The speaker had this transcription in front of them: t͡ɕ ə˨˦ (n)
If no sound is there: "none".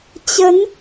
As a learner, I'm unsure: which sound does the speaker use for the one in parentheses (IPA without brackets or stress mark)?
n